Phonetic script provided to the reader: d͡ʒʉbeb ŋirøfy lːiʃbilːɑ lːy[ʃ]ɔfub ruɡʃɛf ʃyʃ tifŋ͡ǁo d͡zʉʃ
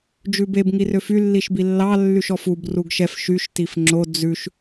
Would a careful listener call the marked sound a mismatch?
no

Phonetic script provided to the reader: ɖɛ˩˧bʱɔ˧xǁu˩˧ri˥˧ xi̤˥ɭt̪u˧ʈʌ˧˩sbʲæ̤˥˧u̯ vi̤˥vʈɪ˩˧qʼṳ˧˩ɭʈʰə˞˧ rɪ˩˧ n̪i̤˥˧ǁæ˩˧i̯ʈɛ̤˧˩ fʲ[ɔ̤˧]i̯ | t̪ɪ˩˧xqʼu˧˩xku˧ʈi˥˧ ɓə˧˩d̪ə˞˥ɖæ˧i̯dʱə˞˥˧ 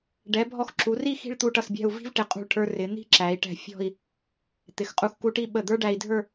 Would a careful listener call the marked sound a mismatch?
yes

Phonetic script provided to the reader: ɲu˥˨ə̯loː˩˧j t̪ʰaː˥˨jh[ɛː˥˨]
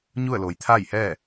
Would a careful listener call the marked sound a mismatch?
no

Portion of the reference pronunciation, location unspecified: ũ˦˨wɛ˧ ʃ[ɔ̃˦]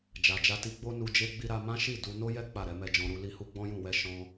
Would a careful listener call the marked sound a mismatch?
yes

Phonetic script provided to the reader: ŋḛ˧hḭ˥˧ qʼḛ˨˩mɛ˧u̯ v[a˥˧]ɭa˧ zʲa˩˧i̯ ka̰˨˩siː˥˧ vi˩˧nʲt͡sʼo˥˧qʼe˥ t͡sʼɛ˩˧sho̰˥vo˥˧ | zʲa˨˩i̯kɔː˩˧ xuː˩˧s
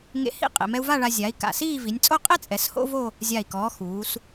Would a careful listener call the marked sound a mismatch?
no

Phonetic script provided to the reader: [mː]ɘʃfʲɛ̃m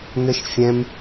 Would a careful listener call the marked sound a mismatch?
yes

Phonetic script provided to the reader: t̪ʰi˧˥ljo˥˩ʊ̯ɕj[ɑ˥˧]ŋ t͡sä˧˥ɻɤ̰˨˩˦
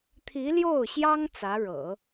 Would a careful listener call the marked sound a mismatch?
yes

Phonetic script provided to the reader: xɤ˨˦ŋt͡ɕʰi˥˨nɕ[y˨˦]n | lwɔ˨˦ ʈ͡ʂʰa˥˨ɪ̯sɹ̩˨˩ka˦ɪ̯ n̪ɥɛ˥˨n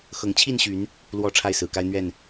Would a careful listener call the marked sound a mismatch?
no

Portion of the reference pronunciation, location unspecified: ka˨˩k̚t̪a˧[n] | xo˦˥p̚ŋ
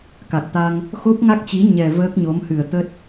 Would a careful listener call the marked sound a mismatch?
yes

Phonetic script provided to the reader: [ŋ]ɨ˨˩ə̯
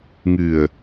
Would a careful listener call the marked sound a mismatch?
no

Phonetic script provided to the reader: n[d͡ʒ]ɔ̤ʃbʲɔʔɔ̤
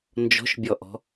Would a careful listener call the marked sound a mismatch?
no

